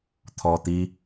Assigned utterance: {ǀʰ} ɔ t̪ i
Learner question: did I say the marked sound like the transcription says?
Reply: no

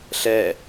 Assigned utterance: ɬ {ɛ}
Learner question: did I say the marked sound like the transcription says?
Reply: yes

